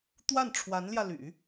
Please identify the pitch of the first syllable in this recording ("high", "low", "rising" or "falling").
falling